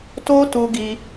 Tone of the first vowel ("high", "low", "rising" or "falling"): high